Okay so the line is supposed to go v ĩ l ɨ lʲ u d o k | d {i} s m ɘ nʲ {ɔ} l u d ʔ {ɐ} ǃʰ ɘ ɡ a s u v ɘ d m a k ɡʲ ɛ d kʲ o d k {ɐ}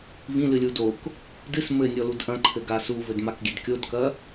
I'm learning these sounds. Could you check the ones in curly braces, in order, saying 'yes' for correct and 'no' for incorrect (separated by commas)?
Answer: no, yes, no, yes